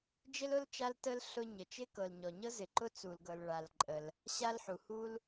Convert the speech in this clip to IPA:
d͡ʒɪ˥lʊ˥l t͡ʃa˥ltə˥l ɬʊ˥ɲə˩ t͡ʃɪ˥kɤ˩l ɲɔ˩ɲɤ˥zɪ˩ ǃʊ˥ t͡su˩lɡɤ˩l ɭa˩lǃʼə˩l | ɕa˥lħu˩hu˥l

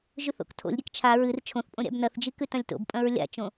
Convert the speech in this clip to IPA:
ʒʉθo̰ktʰo̰lʲɾʲek t͡ʃʰa ɹɨr t͡ʃʰõθpʼõ ɾʲa̰bnɐθd͡ʒi kʉtɐ̃lʲto̰bpʼɐ̃ɹ lʲa̰t͡ʃõ

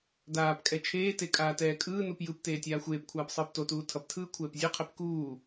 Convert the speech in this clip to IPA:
daːpkʼɛ t͡ʃʰeːte kʼaːtɛːkʼɯːnup jɯpteː tʲaːxʷeːpkʷʰaːp sˤɯːptotuː tʰʌptʰɯː kʷʰɛːpzʲoqʰep kuː

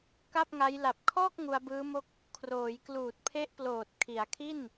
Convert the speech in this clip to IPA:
ka˥˩p̚ŋa˦˥j la˨˩p̚kʰɔː˥˩k̚ ŋu˧a̯bɯː˦˥mo˥˩k̚ | kʰroː˩˦j kluː˨˩t̚pʰe˦˥ʔploː˨˩t̚ kʰi˩˦a̯kʰi˥˩n

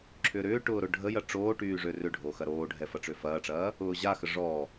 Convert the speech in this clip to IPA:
ǁʰʏːɾʏːʈʊː ɾʊ ɖʱəjɐ ʈ͡ʂoːʈyː ʐørʏɖʱo xɐɾoːɖʱɛ fɐʈ͡ʂøfɐːʈ͡ʂɐː | ʊːʑaxə ʐɔ

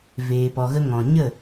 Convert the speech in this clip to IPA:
veː˨pɔ˨ɣə˧ ŋɔ̃˨ɲə˦˨

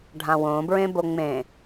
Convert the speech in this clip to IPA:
ɖʱãwõbɹẽ boŋ͡mẽ

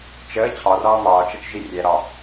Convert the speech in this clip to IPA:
t͡ʃəː t͡ɕʰɒrɒː mɒːt͡ʃət͡ʃ ʒirʲɛɾɒ

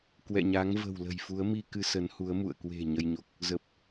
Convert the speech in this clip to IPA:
kwɛ̰˧˨ɲa˨˦ŋvə̤˨˩wlə̤˨˩j fu˨˦ə̯mi˧ kɨ˧sə˨˦nhu˨˦ə̯ mṵ˧˨ə̯kwe̤˨˩ ɲə˧jɲo˨˩k̚ | zə˨˩p̚

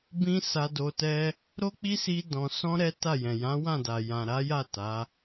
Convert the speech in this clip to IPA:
bĩ˦sa˧ do˧tɛ˦ | ɾo˦k͡pi˦si˧ dɔ̃˨sɔ̃˧ ɾɛ˦ ta˦˨jɛ̃˨ jã˨˦wã˦˨da˨ jã˨ɾa˨˦ja˦˨ ta˨˦

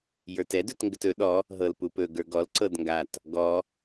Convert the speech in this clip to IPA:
jə˞tɛd ɵtŋɡətɵ ɗɔ | ɦɤlpupɵ ɡə˞ɡɔl ǀɤdŋɡat | ɡɔ

